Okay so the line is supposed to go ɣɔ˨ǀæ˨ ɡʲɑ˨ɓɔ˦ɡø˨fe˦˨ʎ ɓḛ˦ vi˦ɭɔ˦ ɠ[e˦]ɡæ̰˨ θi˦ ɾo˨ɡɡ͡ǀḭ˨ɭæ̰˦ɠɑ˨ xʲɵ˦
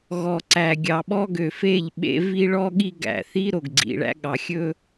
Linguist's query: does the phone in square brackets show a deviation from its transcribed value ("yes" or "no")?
yes